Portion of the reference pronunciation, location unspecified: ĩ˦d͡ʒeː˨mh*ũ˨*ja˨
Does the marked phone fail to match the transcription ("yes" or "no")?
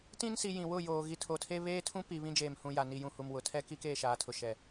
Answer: no